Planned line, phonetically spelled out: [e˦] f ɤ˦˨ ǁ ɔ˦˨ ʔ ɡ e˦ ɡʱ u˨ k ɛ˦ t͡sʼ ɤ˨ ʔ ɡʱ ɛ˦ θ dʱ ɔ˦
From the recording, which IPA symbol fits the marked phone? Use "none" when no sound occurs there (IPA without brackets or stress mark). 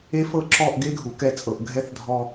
e˦